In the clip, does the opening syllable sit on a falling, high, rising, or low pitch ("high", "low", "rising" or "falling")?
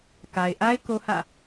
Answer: low